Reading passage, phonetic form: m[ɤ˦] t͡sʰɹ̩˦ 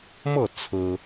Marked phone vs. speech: incorrect: ɤ˥˨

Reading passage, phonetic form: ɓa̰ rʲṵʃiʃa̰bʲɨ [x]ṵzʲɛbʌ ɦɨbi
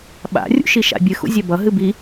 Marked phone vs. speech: correct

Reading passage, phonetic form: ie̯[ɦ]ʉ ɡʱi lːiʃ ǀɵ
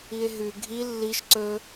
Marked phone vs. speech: correct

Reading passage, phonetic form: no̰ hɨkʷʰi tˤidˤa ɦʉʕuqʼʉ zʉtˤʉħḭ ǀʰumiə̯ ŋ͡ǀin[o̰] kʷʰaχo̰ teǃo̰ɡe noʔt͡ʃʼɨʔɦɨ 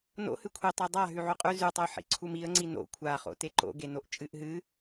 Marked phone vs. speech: correct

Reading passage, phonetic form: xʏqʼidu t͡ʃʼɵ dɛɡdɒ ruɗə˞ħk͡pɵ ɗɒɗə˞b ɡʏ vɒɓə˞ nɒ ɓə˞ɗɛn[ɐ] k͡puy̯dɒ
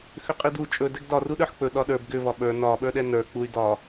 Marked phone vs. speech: incorrect: ə˞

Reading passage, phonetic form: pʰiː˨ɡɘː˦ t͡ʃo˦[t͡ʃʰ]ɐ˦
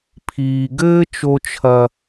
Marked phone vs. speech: correct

